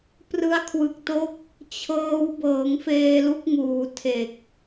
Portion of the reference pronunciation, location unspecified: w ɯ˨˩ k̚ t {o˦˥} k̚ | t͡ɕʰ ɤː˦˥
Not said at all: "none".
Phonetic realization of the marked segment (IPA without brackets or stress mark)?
o˦˥